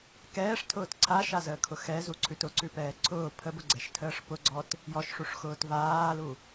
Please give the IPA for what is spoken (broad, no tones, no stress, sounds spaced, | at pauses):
k ɛː ʂ tʰ ʊː t ǀʰ a ʃ a z əː kʰ ʊ x ɛ z u ǀʰ ʉ t ʊ ǀ ʉ p ɛː ǀʰ ʊː pʰ ə b ʊ ɡ͡ǀ ɛ ʃ tʰ əː ʂ p ʊ ɡ͡ǀ ɔ t | j ɔ ʃ ʂ u ʂ x ʊː t v aː l u